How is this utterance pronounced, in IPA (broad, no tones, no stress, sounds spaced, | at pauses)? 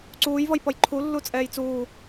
ǀ uː j v ʌ j p ʌ j ǃʰ u lː u t͡sʼ ɛː j t͡s uː